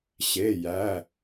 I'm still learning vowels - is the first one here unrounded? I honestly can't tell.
yes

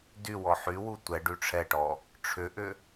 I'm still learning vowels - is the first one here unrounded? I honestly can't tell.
no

